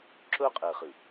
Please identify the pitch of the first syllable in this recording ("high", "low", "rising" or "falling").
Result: high